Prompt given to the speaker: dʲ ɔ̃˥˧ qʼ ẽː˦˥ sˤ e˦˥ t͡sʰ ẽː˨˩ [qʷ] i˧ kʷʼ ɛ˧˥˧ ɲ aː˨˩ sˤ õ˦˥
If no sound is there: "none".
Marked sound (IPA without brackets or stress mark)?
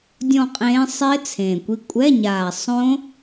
kʷ